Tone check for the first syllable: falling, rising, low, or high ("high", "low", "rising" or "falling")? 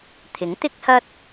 rising